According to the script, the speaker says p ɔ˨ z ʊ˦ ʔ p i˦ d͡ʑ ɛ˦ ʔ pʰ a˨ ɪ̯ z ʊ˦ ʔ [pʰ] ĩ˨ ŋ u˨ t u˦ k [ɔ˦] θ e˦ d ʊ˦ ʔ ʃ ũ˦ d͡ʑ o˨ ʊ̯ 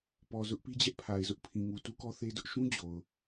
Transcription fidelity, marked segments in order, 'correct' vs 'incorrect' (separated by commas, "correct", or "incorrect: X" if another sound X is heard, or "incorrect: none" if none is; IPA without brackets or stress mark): correct, correct